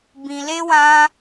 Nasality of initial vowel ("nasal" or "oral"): nasal